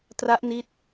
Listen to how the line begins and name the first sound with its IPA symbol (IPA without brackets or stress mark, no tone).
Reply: t